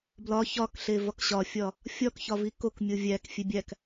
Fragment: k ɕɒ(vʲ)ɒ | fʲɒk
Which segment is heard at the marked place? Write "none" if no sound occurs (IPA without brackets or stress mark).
fʲ